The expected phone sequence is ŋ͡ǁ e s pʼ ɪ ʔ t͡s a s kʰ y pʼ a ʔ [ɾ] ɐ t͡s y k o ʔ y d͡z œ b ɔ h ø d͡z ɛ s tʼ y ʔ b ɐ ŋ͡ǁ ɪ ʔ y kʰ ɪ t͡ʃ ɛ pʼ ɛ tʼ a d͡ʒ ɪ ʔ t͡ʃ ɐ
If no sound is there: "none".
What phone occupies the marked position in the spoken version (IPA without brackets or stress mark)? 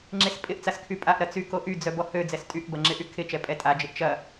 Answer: ɾ